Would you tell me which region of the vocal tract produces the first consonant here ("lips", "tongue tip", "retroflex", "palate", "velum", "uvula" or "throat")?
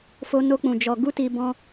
lips